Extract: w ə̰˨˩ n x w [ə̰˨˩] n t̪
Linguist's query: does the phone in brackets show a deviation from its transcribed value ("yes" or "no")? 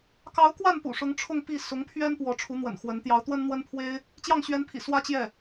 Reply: yes